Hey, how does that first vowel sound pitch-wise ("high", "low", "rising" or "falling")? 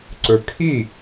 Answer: low